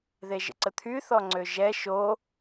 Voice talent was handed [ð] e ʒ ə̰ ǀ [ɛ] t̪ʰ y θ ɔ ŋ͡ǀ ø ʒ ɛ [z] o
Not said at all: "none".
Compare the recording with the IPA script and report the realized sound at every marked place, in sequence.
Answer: ð, ə, ʃ

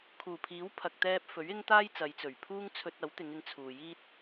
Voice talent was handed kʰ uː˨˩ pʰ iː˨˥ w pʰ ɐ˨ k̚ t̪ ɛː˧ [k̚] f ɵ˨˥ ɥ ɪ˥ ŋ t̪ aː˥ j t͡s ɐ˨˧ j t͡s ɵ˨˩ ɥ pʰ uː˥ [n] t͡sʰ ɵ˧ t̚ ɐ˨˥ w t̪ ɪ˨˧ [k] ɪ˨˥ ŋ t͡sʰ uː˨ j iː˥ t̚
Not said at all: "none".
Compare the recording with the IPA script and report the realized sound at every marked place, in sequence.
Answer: p̚, ŋ, ŋ

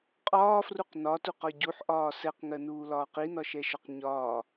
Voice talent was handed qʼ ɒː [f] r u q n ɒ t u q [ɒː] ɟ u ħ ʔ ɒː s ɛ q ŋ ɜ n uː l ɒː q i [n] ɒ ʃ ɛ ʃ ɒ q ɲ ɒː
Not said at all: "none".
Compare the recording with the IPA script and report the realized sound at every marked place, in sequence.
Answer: f, ɒ, n

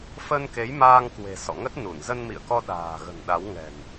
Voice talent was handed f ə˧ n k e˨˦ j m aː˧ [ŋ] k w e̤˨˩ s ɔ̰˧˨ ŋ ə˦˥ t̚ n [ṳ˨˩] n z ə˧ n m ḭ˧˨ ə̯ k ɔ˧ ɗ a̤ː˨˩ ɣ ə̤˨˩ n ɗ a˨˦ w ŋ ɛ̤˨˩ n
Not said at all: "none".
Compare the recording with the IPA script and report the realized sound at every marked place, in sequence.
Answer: ŋ, u˧˩

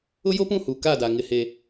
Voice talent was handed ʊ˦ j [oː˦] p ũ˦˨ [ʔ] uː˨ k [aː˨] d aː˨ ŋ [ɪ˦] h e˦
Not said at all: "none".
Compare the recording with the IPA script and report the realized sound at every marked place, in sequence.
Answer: o˦, h, aː˦˨, ɪ˦

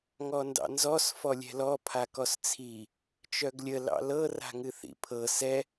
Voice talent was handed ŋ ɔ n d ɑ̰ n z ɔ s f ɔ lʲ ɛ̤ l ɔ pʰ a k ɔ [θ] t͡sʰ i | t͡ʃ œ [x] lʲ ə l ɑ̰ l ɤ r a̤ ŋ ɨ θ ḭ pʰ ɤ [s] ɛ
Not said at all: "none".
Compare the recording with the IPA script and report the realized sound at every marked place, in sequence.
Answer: s, ɡ, s

